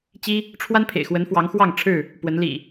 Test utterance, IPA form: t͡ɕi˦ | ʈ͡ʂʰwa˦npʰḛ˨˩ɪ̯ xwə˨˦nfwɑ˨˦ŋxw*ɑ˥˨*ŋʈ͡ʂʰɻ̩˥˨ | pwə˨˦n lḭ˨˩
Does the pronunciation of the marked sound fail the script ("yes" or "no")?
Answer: no